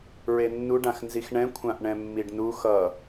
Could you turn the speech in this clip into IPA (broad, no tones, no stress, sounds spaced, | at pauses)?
ɹ e nː u ɖ ã x n z i x ɳ ɛ̃ kʷʰ ã ʔ ɳ ɛ̃ mː i ɖ n u x ʌ